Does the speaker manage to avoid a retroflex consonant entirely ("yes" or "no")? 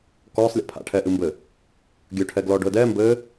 no